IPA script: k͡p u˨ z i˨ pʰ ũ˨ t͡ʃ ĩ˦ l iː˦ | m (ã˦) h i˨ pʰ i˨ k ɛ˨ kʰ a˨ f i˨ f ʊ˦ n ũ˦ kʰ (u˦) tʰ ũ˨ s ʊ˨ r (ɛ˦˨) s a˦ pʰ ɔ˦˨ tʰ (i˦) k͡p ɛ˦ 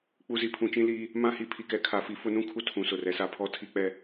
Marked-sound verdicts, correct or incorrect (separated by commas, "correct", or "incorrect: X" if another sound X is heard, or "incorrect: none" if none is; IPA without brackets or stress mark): correct, correct, incorrect: ɛ˨, correct